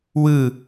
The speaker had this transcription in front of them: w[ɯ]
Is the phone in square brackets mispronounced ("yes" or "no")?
no